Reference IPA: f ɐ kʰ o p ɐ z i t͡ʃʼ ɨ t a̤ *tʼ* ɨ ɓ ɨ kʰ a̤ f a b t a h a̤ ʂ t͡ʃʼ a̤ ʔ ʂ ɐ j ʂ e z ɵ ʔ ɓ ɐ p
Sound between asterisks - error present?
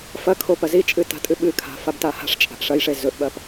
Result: no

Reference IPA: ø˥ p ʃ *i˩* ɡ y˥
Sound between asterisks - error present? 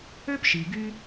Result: no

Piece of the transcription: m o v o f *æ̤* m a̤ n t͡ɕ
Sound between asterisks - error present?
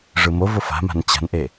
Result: yes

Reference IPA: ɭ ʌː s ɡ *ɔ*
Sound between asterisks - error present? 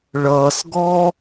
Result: yes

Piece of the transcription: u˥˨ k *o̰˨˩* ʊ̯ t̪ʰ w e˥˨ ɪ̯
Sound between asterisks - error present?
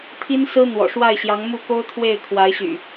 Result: yes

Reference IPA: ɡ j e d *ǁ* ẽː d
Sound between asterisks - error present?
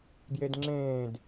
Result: yes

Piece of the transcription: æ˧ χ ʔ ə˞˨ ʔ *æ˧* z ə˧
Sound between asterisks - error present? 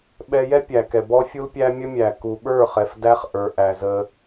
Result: yes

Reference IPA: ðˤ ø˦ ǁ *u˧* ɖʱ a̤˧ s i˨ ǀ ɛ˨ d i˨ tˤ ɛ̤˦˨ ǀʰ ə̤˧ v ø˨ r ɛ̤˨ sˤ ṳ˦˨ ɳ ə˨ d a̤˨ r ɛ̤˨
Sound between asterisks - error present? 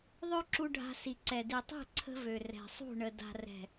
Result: no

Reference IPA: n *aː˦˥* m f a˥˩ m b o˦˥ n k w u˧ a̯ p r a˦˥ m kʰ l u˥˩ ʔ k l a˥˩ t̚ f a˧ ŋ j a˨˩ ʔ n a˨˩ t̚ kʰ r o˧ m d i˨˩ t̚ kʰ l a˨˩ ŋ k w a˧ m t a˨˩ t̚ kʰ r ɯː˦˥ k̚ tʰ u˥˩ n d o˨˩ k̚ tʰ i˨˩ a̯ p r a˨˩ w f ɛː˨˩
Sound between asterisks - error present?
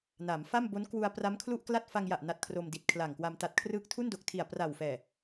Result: yes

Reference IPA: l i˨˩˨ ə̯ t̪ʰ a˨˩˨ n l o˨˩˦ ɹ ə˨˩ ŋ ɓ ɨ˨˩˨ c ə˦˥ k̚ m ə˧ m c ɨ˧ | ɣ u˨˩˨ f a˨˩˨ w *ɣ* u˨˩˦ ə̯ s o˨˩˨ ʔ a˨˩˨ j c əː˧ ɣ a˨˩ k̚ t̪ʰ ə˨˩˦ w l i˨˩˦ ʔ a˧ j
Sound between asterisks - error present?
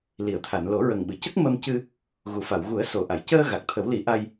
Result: no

